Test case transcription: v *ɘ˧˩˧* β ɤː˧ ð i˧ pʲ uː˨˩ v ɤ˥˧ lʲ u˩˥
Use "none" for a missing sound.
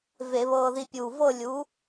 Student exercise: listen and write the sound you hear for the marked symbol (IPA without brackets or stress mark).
e˧˩˧